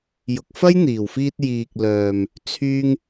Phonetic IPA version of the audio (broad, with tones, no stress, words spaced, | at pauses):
jʊ˨k̚fɐ˥jn̪iː˨˩wfiː˧t̚ jiː˨k̚lœː˨m | t͡sʰyː˧ŋ